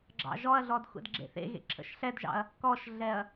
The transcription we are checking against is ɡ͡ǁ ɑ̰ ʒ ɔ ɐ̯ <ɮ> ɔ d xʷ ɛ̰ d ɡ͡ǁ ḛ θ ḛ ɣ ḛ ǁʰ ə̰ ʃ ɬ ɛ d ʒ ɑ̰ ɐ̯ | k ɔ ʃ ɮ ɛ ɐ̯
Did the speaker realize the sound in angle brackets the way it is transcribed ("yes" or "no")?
yes